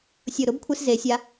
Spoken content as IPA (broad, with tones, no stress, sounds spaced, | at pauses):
sʲ ʊ˧˩ ɾ ʊ˥ b kʷʰ e˥ s z e˩˧ sʲ a˧